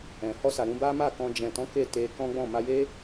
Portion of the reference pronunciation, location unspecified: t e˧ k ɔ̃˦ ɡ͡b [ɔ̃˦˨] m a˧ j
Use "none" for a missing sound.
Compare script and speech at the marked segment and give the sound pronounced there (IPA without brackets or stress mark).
ɔ̃˦˨